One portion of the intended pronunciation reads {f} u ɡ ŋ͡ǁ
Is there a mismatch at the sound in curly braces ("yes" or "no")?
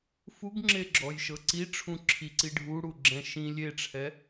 no